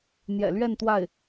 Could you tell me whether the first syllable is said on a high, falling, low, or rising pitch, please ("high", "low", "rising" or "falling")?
low